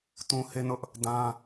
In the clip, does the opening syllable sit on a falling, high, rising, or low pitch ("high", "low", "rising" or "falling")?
high